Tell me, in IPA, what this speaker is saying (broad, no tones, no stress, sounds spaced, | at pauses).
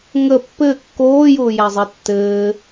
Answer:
ŋ ə pː ɘː kː oː j ʊː j æ zˤ i tː ɘː